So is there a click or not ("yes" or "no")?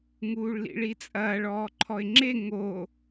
yes